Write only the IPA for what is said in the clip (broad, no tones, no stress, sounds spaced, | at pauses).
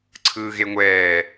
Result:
ǀʰ ɯː ɣ e ŋʷ ɛː